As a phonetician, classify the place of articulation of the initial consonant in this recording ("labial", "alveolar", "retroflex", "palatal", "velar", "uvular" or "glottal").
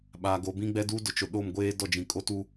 labial